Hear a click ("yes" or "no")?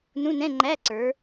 yes